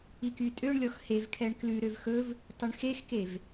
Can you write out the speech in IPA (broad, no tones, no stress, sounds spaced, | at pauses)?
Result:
i k y tʼ ø ɳ lʲ ɔ x h e v kʰ ɛ ɳ k l ʉ ɾ ø v x ɵ v | tˤ y ɳ x e x k e v